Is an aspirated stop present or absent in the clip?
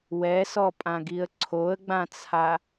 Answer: present